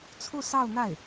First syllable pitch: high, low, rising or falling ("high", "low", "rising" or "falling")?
falling